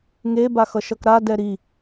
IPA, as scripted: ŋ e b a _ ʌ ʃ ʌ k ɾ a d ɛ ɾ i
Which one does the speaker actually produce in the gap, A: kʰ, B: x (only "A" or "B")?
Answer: B